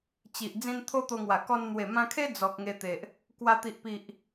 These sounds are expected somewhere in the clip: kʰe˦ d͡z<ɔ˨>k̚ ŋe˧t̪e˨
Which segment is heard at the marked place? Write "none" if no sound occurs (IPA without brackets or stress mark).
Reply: ɔ˨